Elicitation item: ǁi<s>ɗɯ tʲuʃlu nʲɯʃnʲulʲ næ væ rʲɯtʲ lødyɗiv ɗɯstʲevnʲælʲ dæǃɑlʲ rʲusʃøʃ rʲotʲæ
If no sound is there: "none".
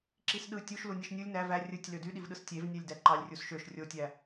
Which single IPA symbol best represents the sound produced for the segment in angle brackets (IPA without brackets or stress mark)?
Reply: s